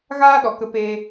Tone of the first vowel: high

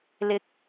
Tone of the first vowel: rising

